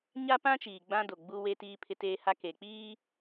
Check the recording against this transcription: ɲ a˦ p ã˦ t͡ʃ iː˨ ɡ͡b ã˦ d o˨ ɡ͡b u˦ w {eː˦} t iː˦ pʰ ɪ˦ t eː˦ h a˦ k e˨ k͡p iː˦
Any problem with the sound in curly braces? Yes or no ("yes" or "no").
yes